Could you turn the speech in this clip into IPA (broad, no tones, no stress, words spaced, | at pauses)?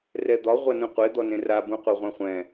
rɛd̪ɒ ʁʷanũqʷe d̪ɔnẽra bũqʷɤʁʷɛ̃χʷɛ̃